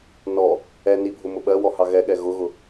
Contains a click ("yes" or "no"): no